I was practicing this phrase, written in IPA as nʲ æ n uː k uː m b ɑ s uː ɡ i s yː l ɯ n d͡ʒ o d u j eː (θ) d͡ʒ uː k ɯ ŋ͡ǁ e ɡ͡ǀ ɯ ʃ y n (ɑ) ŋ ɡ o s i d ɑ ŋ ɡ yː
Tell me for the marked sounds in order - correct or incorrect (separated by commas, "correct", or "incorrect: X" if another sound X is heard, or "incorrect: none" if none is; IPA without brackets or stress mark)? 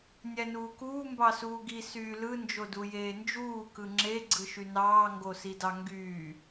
incorrect: n, incorrect: ɑː